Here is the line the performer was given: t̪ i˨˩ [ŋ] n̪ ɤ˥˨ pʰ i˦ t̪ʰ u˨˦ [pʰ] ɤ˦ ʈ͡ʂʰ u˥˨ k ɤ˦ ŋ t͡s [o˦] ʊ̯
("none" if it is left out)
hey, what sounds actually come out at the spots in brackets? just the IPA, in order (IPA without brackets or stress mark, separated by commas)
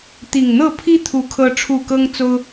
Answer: ŋ, kʰ, o˦